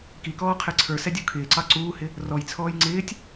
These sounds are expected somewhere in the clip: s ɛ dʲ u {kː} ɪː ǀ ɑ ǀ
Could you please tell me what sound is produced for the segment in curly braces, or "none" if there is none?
kʰ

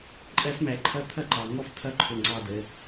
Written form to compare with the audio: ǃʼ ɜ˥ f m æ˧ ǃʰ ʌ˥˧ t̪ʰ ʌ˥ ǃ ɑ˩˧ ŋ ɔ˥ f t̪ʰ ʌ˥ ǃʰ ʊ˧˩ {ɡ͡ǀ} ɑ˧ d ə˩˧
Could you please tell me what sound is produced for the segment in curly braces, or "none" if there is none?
ŋ͡ǀ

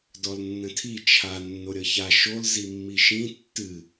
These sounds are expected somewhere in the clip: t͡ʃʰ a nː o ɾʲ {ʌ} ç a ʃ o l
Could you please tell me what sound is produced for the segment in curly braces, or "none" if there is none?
ʌ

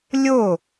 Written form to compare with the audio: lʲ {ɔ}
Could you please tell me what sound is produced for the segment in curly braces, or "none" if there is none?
o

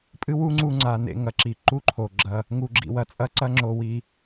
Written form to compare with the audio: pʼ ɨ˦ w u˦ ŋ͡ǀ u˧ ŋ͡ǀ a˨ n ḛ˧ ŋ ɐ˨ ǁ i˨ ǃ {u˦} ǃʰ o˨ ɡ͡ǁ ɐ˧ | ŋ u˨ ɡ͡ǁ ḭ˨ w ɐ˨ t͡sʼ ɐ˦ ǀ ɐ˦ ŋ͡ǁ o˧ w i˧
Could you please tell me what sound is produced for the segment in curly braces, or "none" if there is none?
u˦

